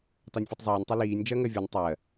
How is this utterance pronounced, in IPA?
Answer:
t ɑ nʲ fʲ u tˤ zˤ ɜː nʲ tˤ ɛ l iː nʲ d͡ʒ ɜ ŋ ɜ vʲ ɔ nʲ tˤ ɜ

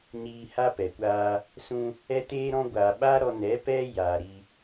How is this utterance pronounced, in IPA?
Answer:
ɲ iː˧ h a˦ p ɛ˨ kʷ aː˧ | s ũ˧ | ɛ˦ t eː˦ ɾ ɔ̃˦ ɡʷ aː˨ ɓ aː˦ ɾ ɔ˧ n ɛ˨˦ p ɛ˦ j aː˨ ɾ i˧

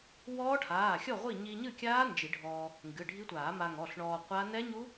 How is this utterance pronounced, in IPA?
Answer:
w ɔː˦˥ ʈʰ aː˩˧˩ xʲ ɔ˥˨ ʁʷ i˥˨ ɲ i˧ ɲ ɨ˥˨ kʲ aː˦˥ n d͡ʒ i˨˩˦ ɖʱ ɔː˧ | ŋ ɡ ɨ˩˧˩ ɖʱ i˦˥ tʷ aː˨˩˦ m a˧ ŋ ɔ˩˧˩ ɬ ɳ ɔː˧ qʷ a˦˥ n ɛ˦˥ ɲ u˦˥

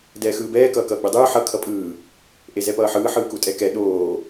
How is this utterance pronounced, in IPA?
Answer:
d ɛː x ɯː b ɛː k ʌː k ʌː ɡ͡b ɯ dˤ ɯː ħ ʌ kʰ ʌ pʼ ɯː | ʔ e z ɛ p ʌː ħ ɯː ħ ɯː k u tʼ ɛ k ɛ ɗ oː

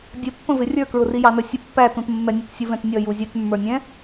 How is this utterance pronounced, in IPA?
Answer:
dʲ ə pː ə̃ v ɪ rʲ ə˞ k ɹ ʊ r i j ɑ n ə sʲ ə pː æ t ũ t mː ɛ nʲ ə t sʲ u v ɛ̃ t nʲ ʌ j u zʲ ɛ t mː ə˞ nʲ ɛ̃

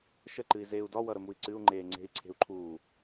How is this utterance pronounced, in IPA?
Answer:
ʃ ə ǃ ɨ i̯ z eː u̯ d ɒ w ʌ ɾ ə m u i̯ ǀ ɨ u̯ ŋ͡ǃ eː ŋ͡ǀ e̤ i̯ ǀʰ e̤ u̯ ǃʰ uː

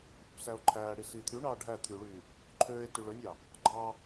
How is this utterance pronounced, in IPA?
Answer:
p y p s æ o̯ ǃʰ æː ɽ i s iː t̪ʰ y ɳ ɑː ɖʱ æ t̪ʰ y ɭ yː | ǃʰ øː e̯ t y ɭ ø nʲ ɑ | ɡ͡ǃ ɑ

